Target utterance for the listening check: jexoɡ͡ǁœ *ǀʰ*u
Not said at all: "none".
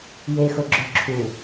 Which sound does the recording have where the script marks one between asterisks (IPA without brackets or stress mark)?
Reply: ǁʰ